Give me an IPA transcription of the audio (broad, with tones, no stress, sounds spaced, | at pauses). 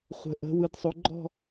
χʷ ə̤˨˦ ʔ ə̤˨˦ w ɯ˨˦ d sˤ o˨˦ ɡ͡ǃ ɔ̤˥˧